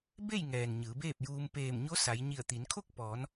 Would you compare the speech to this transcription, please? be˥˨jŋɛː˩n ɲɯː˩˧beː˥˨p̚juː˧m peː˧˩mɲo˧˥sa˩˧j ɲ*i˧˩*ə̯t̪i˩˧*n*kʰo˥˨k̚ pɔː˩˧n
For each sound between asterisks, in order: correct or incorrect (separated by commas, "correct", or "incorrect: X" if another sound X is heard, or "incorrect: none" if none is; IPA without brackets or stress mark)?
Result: correct, correct